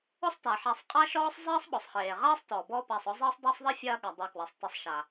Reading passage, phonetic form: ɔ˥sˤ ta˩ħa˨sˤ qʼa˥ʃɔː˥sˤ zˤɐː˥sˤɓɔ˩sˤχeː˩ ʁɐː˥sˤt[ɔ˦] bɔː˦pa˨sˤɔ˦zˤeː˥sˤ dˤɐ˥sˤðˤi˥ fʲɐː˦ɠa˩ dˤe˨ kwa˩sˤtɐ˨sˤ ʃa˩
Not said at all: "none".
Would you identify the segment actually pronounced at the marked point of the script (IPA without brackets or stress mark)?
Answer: ɔ˩